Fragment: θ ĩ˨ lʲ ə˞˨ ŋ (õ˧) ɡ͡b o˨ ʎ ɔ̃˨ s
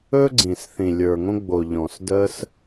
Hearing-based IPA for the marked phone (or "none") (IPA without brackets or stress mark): õ˧